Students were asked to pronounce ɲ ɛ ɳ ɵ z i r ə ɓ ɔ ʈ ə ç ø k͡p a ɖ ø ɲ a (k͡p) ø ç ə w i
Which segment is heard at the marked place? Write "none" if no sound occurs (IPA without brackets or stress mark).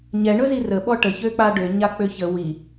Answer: k͡p